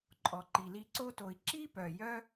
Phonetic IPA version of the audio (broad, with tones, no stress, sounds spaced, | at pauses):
ǃʼ ɔ˩ ǃ i˩ l i˦ ǀ o˥ t o˨ i̯ ǁ i˥ p œ˩ j œ˦